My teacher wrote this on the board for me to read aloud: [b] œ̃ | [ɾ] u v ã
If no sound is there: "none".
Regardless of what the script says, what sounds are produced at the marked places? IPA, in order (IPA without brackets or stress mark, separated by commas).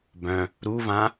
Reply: b, ɾ